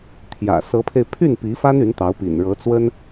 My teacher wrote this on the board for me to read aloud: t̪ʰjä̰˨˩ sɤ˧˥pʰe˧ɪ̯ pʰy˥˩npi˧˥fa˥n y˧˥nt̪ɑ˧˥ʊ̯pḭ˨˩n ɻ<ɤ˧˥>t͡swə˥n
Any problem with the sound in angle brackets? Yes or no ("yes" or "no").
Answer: no